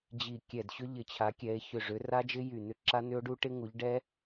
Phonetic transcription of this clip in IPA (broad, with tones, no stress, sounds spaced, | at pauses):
d͡ʑ i˧˩ kʲ ɛ˧˩ d ɕ ʏ˦˥ ʎ ɪ˧˩ t͡ɕʰ a˨˦ kʲ ɛ˨˦ e̯ ç ʏ˧˩ ʐ ʏ˨˦ r a˦˥ d͡ʒ ɪ˦˥ j y˧˩ n̪ ʏ˦˥ ǁ a˦˥ n̪ ʏ˦˥ o̯ ɖ u˦˥ ʈ ɪ˦˥ ŋ u˨˦ ʎ ɖ ɛ˦˥